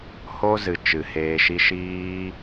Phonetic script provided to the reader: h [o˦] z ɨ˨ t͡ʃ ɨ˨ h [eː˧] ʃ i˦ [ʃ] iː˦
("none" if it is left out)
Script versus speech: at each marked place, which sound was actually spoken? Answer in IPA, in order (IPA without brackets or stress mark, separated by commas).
o˦, eː˧, ʃ